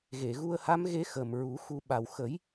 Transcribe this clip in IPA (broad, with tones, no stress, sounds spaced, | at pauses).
ɣ e˨˩˨ ɣ u˧ ə̯ h a˧˥ m ɣ e˧˥ x ə˨˩ m ɹ u˨˩˦ x u˧ ɓ a˨˩ w x ə˨˩˦ j